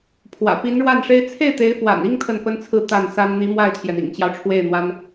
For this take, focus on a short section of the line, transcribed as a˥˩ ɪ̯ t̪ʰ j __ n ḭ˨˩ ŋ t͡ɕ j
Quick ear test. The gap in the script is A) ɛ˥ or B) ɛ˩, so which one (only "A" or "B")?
B